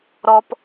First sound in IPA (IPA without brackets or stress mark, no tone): ɾ